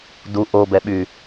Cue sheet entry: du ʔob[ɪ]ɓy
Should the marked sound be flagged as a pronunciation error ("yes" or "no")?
yes